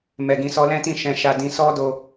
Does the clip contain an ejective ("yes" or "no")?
no